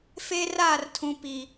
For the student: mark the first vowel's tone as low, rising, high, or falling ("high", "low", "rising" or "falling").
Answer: high